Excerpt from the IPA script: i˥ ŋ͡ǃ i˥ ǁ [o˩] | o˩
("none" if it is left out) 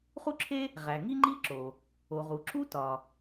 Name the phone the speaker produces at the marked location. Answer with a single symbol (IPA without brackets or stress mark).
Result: o˩